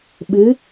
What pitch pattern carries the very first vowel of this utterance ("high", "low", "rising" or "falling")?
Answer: rising